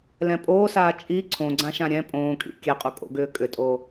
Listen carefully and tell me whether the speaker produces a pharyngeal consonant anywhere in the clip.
no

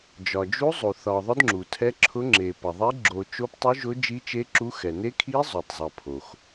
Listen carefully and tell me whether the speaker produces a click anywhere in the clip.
yes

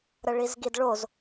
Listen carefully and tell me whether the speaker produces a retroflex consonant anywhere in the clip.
yes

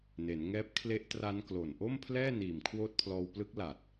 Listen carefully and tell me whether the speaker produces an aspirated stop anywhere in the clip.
yes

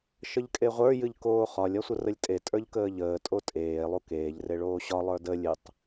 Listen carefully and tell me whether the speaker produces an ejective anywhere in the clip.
yes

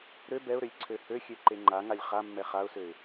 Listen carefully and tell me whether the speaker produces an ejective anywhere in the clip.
no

